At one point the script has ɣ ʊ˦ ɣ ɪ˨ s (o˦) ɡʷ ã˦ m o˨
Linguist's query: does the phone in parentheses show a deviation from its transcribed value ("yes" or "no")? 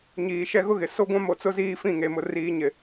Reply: no